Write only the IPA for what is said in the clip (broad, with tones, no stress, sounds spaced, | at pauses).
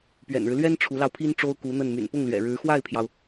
p ɥ ɛ̰˨˩ n ɻ ɻ̩˦ l ɥ ɛ˥ n ʈ͡ʂʰ u˧˥ l ɑ˧ ʊ̯ pʰ i˥ n ʈ͡ʂ o˥ ʊ̯ k u˧˥ n̪ ə˥˩ n m y̰˨˩ n p ʊ˥˩ ŋ l ɥ ɛ̰˨˩ ɻ ɻ̩˧˥ x w a˥˩ ɪ̯ pʰ j ɑ˩ ʊ̯